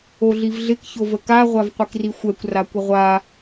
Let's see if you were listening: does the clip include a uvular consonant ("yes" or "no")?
yes